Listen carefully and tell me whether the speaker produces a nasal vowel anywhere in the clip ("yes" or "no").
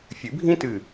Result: yes